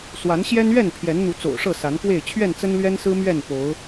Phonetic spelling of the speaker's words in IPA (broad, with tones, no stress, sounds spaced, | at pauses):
s w a˨˦ n ɕ j ɛ˦ n ɥ ɛ˥˨ n pʰ j ɛ˨˦ n n̪ u˨˦ t͡s o̰˨˩ ʊ̯ ʂ ɤ˥˨ s a˨˦ n k w e˥˨ ɪ̯ t͡ɕʰ ɥ ɛ˥˨ n t͡s ə˦ n l ɥ ɛ˦ n s ɹ̩˦ m ɥ ɛ˥˨ n p o˨˦ ʊ̯